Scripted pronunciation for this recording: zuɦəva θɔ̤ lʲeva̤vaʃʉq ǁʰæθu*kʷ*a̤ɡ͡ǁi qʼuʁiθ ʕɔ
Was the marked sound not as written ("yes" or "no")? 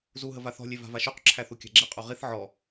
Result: yes